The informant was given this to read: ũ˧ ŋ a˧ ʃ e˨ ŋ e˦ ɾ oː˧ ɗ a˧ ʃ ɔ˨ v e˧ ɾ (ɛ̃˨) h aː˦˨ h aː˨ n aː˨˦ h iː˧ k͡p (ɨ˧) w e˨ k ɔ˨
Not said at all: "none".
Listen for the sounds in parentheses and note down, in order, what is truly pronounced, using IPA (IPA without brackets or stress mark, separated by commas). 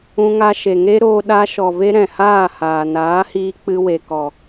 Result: ɛ̃˨, ɨ˧